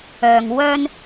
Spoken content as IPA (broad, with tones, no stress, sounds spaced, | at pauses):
œː˨ ŋ w œː˧ n